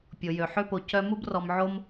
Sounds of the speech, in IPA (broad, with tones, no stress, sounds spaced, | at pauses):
pʲ o˩ j ø˩ ħ ø˥ p o˩ c œ˦ m u˥ b r ɔ˨ m ʕ o˥ m